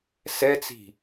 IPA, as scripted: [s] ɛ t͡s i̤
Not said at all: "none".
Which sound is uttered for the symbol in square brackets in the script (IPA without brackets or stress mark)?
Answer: s